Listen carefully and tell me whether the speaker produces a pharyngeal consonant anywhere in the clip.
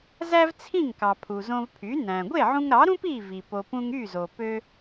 yes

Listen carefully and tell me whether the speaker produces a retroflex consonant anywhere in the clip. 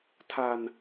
no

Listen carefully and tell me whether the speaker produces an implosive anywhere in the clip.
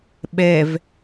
yes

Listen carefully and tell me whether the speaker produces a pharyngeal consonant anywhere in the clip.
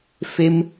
no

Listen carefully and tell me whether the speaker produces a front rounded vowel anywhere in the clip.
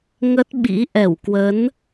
no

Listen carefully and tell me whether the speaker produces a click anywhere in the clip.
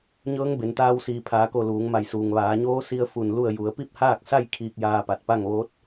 no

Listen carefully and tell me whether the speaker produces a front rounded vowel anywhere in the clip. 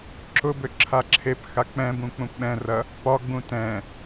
yes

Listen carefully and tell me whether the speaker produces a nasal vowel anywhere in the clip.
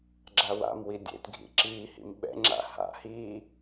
no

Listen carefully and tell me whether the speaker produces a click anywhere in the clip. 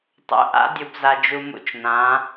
no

